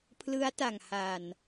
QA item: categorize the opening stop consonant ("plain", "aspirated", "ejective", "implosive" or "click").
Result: aspirated